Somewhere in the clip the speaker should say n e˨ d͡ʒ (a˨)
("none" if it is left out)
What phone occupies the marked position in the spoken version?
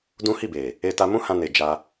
a˧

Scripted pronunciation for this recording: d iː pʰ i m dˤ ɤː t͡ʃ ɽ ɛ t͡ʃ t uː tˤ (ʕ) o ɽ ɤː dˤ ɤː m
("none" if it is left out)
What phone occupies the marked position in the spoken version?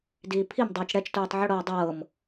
ʕ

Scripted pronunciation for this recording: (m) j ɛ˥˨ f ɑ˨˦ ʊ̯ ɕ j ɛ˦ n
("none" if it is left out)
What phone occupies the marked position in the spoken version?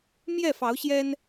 m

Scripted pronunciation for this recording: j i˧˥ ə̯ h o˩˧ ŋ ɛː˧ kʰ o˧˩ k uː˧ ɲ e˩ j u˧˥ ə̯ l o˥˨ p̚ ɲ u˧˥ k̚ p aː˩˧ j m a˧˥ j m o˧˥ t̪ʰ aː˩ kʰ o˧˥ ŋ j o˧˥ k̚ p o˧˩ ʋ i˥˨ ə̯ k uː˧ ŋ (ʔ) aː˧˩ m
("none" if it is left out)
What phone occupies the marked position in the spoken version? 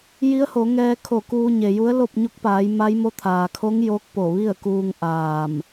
ʔ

